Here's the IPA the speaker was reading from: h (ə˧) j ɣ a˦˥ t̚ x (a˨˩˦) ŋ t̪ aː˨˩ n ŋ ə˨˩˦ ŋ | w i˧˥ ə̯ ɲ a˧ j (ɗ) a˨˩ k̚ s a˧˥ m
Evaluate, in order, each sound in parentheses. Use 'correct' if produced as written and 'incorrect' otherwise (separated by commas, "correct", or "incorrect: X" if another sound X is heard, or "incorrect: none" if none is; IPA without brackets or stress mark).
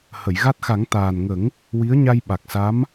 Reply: incorrect: ə˨˩˨, correct, incorrect: ɓ